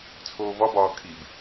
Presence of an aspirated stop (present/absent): present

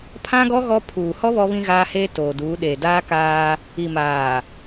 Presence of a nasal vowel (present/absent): present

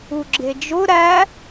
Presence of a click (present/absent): present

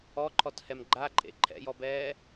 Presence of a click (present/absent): present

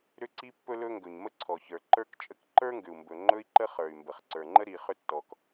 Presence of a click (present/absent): present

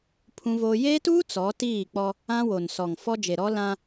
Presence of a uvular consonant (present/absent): absent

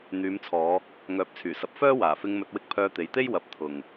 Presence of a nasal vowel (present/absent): absent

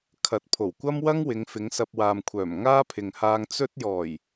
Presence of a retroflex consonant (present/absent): absent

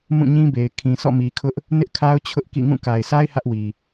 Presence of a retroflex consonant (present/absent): absent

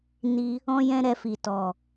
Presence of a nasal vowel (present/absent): present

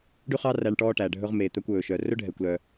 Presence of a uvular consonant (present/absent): present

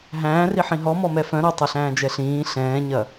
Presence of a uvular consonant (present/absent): absent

